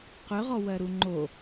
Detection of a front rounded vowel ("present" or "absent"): present